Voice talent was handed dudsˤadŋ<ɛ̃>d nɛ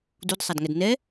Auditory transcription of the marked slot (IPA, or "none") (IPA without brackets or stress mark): ɛ